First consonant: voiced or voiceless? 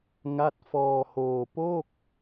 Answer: voiced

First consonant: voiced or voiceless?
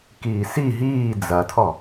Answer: voiceless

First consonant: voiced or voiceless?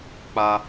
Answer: voiceless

